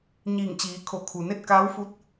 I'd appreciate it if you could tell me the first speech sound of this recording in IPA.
ɲ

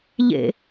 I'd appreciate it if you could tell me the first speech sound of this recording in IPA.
ʎ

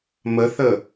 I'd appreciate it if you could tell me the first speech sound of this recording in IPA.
m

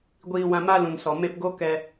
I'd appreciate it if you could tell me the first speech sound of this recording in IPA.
ɡʷ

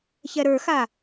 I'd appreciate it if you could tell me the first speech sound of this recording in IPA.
ç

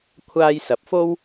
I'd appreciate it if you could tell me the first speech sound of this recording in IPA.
kʷʰ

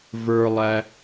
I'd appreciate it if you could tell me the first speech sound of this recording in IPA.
v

